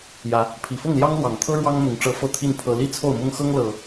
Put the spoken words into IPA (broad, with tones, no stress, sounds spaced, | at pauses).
j ä˨˦ | pʰ i˨˩ f ʊ˥˨ ŋ l j ɑ˦ ŋ l w ɑ˨˩ ŋ t̪ʰ ɤ˦ ɻ w ɑ˦ ŋ m ʊ˨˦ ŋ ʈ͡ʂ ɤ˦ f ɤ˥˨ t̪ʰ i˥˨ n pʰ ɤ˦ l i˥˨ t͡sʰ o˥˨ ʊ̯ m ʊ˦ ŋ x ɤ˦ ŋ l ɤ˨˩